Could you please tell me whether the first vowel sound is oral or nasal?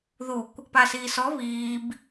oral